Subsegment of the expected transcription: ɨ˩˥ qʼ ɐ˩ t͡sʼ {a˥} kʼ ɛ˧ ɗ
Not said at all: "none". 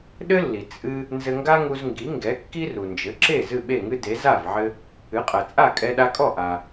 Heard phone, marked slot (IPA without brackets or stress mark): a˥˩